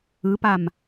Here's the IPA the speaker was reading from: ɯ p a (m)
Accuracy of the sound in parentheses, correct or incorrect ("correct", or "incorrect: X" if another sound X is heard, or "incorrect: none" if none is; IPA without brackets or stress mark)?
correct